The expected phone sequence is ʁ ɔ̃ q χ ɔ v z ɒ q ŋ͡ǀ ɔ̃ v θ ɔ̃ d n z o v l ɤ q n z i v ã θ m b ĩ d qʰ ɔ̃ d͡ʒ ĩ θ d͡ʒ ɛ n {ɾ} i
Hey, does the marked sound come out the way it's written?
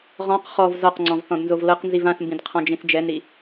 yes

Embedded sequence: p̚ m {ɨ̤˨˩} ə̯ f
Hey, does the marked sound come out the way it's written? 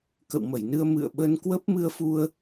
no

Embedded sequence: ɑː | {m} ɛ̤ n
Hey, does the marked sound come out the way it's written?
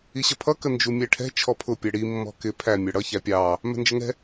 yes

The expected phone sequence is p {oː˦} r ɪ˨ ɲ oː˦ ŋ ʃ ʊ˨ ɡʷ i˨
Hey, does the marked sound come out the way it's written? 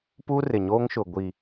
no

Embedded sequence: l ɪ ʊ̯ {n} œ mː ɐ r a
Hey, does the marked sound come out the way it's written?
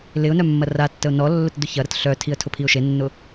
yes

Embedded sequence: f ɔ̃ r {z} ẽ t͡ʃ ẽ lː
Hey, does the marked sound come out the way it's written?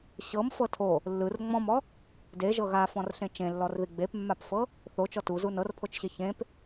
no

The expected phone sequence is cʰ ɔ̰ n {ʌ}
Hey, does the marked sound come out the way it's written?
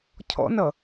yes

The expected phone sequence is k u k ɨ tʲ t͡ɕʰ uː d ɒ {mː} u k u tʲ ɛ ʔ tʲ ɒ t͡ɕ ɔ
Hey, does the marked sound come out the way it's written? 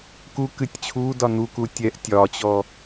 no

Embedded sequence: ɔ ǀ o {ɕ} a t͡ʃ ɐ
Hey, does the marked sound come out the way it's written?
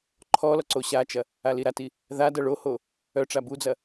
yes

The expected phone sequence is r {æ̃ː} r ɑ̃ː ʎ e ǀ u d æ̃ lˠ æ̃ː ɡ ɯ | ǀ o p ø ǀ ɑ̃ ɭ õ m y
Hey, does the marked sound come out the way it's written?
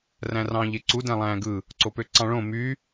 no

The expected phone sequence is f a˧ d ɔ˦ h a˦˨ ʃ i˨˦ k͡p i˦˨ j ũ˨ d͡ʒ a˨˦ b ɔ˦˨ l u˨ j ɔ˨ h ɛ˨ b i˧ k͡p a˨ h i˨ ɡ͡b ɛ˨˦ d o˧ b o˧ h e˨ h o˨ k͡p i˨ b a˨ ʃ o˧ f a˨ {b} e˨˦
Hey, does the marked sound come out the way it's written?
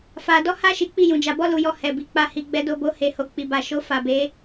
yes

